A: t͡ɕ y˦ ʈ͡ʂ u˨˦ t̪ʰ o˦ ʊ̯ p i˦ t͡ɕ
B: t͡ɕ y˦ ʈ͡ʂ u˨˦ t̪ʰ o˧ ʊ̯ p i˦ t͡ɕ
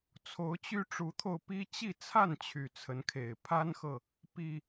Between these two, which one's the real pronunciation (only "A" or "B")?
B